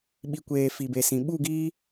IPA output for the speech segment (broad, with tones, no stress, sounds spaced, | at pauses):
ɓ i˨ kʷ eː˨ f i˨ b e˨ s ĩ˨ ɓ u˦˨ ɡ iː˦